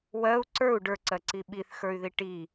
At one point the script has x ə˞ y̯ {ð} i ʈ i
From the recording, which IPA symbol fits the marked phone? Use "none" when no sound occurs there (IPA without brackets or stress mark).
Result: ð